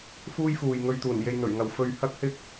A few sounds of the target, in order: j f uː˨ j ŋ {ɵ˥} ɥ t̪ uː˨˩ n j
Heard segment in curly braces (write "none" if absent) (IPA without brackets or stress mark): ɵ˧